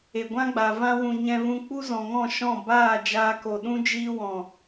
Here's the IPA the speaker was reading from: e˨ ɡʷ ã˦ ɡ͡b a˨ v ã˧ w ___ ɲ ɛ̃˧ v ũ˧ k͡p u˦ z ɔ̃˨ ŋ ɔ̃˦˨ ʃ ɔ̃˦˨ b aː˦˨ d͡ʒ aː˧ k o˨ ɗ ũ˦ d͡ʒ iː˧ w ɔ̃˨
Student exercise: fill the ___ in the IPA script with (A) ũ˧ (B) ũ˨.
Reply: B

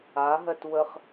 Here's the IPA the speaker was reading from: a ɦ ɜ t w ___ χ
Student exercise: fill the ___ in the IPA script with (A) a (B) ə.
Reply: B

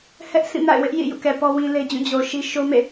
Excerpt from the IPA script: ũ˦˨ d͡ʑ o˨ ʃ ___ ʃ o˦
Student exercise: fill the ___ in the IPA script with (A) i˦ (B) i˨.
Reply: A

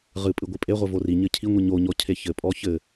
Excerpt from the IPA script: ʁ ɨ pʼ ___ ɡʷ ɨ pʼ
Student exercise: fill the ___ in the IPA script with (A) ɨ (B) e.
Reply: A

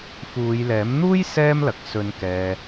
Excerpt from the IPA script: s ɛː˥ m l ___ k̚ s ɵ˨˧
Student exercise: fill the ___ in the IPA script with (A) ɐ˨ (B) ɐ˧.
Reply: A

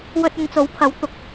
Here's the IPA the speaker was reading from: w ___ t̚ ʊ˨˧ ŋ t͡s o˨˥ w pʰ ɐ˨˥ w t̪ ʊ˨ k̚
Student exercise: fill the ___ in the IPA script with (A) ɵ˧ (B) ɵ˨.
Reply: A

